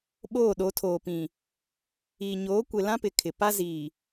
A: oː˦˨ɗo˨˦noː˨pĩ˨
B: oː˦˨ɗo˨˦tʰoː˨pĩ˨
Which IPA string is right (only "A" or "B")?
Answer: B